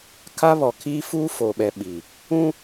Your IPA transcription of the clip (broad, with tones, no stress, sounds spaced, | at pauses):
kʰ a˦ β ɔ˨ kʰ iː˦ f uː˦ f oː˨ ɓ ɛ˨ ɓ i˨ | ũ˦